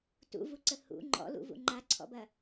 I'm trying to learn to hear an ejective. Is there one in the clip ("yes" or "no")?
no